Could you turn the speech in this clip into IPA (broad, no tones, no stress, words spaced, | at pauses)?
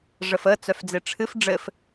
ʐəfə t͡sœfd͡zeʈ͡ʂʰɨf ɖ͡ʐɘf